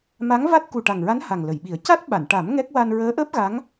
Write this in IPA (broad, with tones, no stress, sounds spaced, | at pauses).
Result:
m a˧˥ ŋ v a˦˥ t̚ k u˨˩ ʈ a˨˩ ŋ ɹ a˧˥ n h a˨˩ ŋ l ə˨˩˨ j ɓ i˨˩˦ ə̯ c a˦˥ t̚ ɓ a˨˩˨ n ʈ a˨˩˦ m ŋ ɛ˦˥ k̚ w a˧ n ɹ əː˧˥ ʔ əː˦˥ p̚ ɣ a˧˥ ŋ